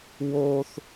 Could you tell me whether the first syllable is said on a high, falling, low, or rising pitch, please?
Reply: high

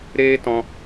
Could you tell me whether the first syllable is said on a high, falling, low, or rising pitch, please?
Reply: high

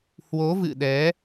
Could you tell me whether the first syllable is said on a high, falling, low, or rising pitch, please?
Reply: rising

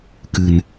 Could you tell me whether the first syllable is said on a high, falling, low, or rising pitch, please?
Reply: low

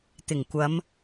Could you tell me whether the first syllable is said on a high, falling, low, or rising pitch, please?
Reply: low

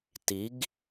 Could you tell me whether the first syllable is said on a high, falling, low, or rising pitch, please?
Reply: rising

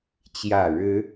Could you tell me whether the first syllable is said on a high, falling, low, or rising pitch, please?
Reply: low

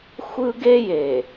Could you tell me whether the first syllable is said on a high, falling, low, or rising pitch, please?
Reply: high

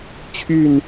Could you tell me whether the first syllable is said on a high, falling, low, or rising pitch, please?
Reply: falling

